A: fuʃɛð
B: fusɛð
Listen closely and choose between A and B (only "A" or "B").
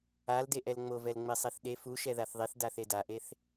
A